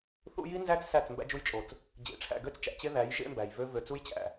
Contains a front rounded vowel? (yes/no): yes